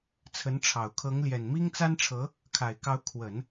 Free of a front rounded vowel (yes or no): yes